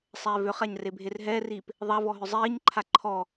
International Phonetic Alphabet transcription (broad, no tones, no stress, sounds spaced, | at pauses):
sˤ ɛː v ʏ χ a ɲ r e bʱ e r ɦ ɛː r iː p | ðˤ a v ɔ ɦ ʏ zˤ iː ɲ ǃʰ a ǃʰ ɔ